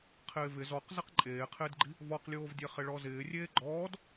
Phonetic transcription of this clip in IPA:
qʰ ɪː v ɪ z ɔ q z ɛ q ǃʼ eː qʰ ɪː d ɡ͡ǃ i | v ɔ q lʲ oː v dʲ ɛ χ ɪ ɭ ɔ z ɪː rʲ eː ɡ͡ǃ ɔː d

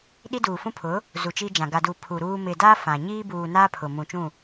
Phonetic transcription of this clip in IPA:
ɗ i˦ d uː˨ f ũ˦ pʰ ʊ˨˦ | z u˨ t͡ʃ iː˦ d͡ʒ ã˨ ɡ a˨ d u˨ pʰ u˨ ɾ uː˦ m ɪ˨ d a˦ f ã˨ ɲ iː˦ b uː˨ n aː˦ pʰ ʊ˨ m ũ˨ t͡ʃ ũ˦˨

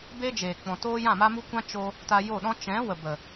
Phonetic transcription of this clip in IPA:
b e˦ d͡ʒ eː˨ k͡p ɔ̃˨ t oː˦ j ã˦˨ m a˦ m u˦ kʷ ã˦ t͡ʃ o˧ | t a˧ j o˦˨ ɗ ɔ̃˦ t͡ʃ ɛ̃˨˦ w ə˨ b ə˨

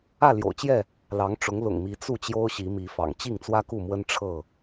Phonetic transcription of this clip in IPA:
ä˥˨ l j o̰˨˩ ʊ̯ t͡ɕ j ɛ˥˨ | l ɑ˨˦ ŋ ʈ͡ʂ ʊ˨˦ ŋ l ʊ̰˨˩ ŋ m i˨˦ t͡s u˥˨ t͡ɕ j o˦ ʊ̯ ɕ i˨˦ m i˨˦ f ɑ̰˨˩ ŋ t͡ɕ i˥˨ ŋ t͡s w ä˦ k u˥˨ m w ə˦ n ʈ͡ʂʰ ɤ˥˨

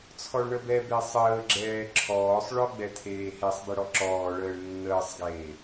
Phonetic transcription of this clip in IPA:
t͡sʰ ɔ ɭ ɳ ə b ɛ b e sˤ əː ɡ͡ǁ ɛː ǁʰ ɔː sˤ ɭ ɔ ɡ͡b ɛ tʰ eː h e sˤ b e ɽ ɔ ǁ ɔː ɭ əː ɭ nː əː sˤ ɡ eː

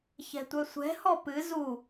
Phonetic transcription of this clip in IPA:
ç ɛ̤ tʷ œ sʷ ɛ̤ h ɔ p ɨ z u

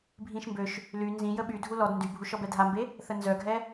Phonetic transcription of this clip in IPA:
bʱ ĩ ʃ m b ø ʃ | l y n z ĩ j ə ɓ y dʱ u l ɔ d n d y bʱ u ʃ ɔ b ɛ dʱ a m b e | θ ə n z œ ɡʱ ɛ

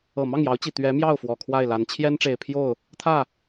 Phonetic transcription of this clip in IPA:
ɤ˨˩ m ɑ˥˩ ŋ j ɑ˧˥ ʊ̯ t͡ɕ i˨˩ t̪ ɥ ɛ˧˥ m j ɑ˥˩ ʊ̯ f w ɔ˨˩ kʰ w a˥˩ ɪ̯ l a˧˥ n t͡ɕʰ j ɛ˥ n ʈ͡ʂ e˨˩ ɪ̯ pʰ j o˥˩ ʊ̯ | t̪ʰ ä˥˩

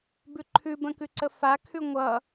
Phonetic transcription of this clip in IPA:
b ʉ ǃʰ ʉ b ə̃ k ʉ ǀ ə f a kʰ ʉ ŋʷ ʌ

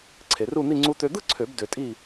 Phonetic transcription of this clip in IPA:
ǀʰ e˧ r u˥˧ n̪ i˥˧ ŋ͡ǀ u˧ t̪ ø˧ d̪ ɯ˥˧ ǀʰ ø˨˩˦ b d ø˧ tʼ i˥˧

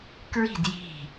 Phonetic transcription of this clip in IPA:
k ɹ i̤ d j i̤

